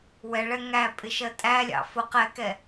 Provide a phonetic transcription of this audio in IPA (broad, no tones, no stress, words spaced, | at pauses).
wɛɭɛ ŋæpʼɪʃɜ tʼælʲɑ̰ fʊ qɛkɛ